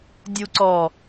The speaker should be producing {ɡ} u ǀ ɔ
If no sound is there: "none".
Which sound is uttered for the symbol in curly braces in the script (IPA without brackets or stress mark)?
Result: dʲ